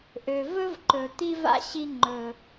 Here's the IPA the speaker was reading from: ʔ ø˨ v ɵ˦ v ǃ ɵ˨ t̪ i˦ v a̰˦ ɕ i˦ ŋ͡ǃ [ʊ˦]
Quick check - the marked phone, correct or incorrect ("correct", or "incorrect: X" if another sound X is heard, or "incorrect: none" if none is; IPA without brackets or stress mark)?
incorrect: ɵ˦